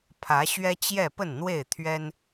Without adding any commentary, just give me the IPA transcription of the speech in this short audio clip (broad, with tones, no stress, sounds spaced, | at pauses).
pʰ ä˨˦ ɕ ɥ ɛ˦ t͡ɕ j ɛ˥˨ p ə˥˨ n n̪ w e˥˨ ɪ̯ t̪ʰ ɥ ɛ˦ n